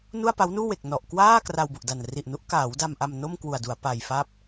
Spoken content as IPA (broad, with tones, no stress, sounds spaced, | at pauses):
n u˥˩ a̯ p a˦˥ w n uː˥˩ w e˨˩ k̚ n ɔ˨˩ ʔ k w aː˥˩ k r a˧ w b u˨˩ ʔ d a˨˩ n r i˨˩ ʔ n u˦˥ ʔ k aː˩˦ w d a˧ m ʔ a˧ m n o˥˩ m k w u˨˩ a̯ d u˩˦ a̯ p a˧ j f a˥˩ p̚